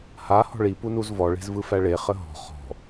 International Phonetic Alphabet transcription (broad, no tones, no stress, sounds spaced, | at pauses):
h a h ɔ̤ ɭ i p u n u z v ɔ ɭ e̤ z v ɯ f æ ɭ e χ ə ɦ ɔ̤ χ ɔ̤